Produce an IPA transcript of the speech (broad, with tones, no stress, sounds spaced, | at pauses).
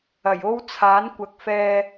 ɐ˨˩ j o˥ w t͡sʰ aː˨˥ n kʷ ɐ˨˥ k̚ f ɛː˧